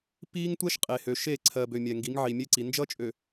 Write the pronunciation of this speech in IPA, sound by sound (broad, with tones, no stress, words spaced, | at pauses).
piː˦ŋtʷɛ˦ʃ qʼe˨hø˨ ʃe˦˨ ǀʰɜ˨bø˨ mʲɛ˨ŋɡi˨˦ŋ ʕi˨mʲe˦ǀi˨ nd͡ʒʌ˦ t͡ʃʼø˨